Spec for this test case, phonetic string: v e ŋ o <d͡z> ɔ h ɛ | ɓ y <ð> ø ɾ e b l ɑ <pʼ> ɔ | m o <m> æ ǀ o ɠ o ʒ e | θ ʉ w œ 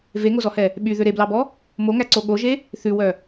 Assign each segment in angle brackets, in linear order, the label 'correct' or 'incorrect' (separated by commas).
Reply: incorrect, correct, incorrect, incorrect